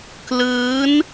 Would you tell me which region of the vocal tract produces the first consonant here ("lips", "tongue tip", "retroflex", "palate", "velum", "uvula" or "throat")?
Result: velum